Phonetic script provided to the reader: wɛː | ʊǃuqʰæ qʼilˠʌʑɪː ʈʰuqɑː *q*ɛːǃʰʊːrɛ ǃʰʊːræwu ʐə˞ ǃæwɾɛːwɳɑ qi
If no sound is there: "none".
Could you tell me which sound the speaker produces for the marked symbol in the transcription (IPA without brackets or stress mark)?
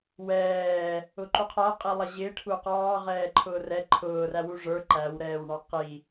ʁ